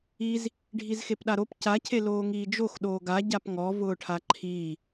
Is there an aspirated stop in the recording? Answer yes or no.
yes